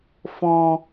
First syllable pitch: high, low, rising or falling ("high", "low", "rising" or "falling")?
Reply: low